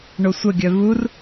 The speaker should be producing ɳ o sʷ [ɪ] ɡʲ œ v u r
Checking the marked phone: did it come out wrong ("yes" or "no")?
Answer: yes